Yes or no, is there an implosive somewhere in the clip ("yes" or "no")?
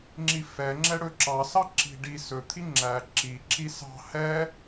no